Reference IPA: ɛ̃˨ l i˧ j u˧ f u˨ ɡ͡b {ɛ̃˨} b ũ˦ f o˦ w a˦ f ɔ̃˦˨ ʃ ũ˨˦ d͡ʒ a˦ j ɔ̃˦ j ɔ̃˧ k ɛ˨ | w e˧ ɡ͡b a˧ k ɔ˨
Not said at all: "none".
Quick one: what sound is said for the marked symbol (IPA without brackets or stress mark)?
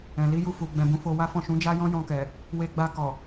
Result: ɛ̃˧